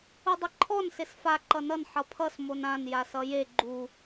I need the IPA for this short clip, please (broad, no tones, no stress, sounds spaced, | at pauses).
u dˤ ʌ ǃʰ ɔ n s e s f a ǃ ʌ n ʌ n ħ ʌ pʰ ʌ s m o n ã n j a s ʌ j e ɡ͡ǃ u